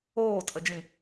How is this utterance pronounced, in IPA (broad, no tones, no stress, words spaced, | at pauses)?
oːtʼəd͡ʒĩ